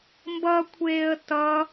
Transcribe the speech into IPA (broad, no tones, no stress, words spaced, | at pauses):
mbʌkʷʰeːə̯ tʌ